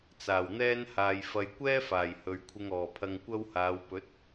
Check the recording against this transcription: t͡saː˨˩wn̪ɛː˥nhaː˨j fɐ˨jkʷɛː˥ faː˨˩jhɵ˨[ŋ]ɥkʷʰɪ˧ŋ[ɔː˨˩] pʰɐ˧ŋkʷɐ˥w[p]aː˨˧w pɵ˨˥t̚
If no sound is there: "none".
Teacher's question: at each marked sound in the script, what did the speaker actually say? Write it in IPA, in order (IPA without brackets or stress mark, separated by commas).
none, ɔː˨˩, h